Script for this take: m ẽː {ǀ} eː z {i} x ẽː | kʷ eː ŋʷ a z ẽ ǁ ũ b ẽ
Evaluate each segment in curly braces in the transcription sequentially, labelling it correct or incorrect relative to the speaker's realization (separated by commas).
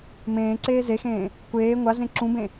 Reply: correct, incorrect